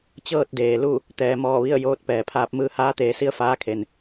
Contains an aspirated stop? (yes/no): yes